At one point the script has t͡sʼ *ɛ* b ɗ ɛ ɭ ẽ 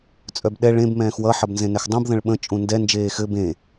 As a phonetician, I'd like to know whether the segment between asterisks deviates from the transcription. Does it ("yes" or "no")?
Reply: yes